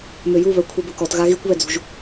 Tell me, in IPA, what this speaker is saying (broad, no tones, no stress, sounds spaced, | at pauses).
m ø j u β œ kʷʰ i b ə k ɔ t ɣ a ɣ i kʷ β ɛ d͡z ṳ ʒ